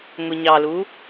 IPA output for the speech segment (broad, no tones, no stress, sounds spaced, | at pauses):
ŋʷ ɯ ɲ ɑ l u